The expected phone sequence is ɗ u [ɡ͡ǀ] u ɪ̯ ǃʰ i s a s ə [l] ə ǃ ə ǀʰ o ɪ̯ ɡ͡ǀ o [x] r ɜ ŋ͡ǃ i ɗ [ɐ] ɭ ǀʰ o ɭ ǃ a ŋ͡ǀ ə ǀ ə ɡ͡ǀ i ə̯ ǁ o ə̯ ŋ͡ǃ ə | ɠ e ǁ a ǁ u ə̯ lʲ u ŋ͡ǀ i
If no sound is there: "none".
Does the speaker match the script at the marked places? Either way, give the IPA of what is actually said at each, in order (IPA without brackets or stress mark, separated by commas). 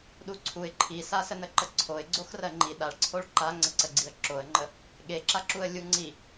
ǀʰ, n, x, a